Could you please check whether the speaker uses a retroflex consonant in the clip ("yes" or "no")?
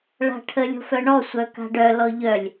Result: yes